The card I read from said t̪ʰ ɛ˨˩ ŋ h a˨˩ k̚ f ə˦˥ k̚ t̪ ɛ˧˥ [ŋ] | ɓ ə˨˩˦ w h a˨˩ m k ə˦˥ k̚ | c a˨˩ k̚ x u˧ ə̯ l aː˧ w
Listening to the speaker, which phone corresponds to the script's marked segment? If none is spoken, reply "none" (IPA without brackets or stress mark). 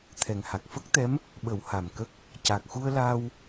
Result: m